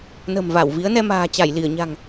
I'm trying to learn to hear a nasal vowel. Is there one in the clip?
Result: no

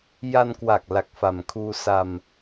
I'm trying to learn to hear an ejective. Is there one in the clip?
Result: no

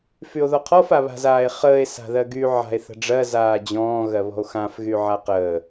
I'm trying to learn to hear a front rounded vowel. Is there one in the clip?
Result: yes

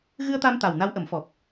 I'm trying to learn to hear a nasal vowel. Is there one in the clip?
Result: no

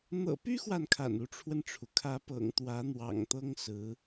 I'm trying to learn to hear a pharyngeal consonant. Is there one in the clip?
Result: no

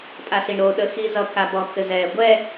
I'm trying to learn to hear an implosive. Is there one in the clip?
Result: yes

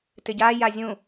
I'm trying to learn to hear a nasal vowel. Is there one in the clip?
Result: yes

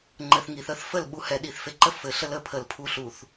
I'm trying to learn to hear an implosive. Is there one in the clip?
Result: yes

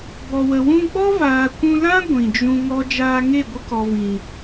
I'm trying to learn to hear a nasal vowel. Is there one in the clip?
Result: yes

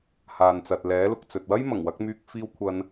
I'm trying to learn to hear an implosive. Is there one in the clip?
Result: no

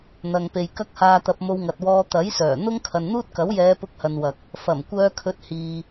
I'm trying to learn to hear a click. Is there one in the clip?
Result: no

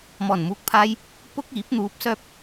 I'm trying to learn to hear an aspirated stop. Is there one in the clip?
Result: yes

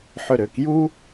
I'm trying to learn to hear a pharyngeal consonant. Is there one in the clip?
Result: yes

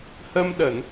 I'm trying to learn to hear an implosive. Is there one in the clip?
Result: yes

